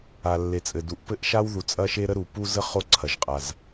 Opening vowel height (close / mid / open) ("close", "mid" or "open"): open